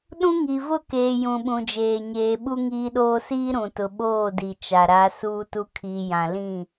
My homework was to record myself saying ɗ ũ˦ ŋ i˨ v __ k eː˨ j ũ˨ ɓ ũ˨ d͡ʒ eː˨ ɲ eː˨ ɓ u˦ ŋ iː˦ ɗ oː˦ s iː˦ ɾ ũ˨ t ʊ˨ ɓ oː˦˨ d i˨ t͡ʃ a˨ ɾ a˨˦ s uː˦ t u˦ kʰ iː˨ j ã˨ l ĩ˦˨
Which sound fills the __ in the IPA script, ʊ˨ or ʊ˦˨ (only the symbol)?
ʊ˦˨